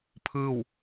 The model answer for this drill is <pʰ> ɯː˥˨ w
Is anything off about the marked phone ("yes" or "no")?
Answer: no